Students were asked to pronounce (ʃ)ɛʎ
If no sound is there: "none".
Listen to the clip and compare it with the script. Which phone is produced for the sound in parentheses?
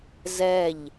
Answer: z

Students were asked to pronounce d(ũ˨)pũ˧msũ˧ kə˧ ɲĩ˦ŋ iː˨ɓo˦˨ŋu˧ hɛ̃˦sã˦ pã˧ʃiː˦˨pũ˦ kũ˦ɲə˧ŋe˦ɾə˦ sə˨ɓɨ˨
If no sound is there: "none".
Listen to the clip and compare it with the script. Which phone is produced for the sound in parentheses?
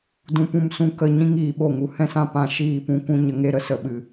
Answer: ũ˧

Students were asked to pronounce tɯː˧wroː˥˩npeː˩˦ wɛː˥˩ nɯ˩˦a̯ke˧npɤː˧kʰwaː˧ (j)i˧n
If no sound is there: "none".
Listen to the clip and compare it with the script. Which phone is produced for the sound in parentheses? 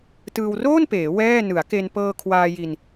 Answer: j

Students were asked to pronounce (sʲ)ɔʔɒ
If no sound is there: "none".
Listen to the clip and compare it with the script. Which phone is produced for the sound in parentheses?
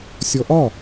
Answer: sʲ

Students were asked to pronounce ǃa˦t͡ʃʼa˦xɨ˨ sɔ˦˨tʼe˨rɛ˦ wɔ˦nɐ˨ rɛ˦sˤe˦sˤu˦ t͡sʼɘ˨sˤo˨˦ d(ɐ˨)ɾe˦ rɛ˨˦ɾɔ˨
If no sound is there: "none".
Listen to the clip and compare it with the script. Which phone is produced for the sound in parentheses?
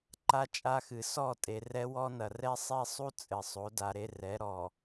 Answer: a˨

